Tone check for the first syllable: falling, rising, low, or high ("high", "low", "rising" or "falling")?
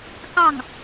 falling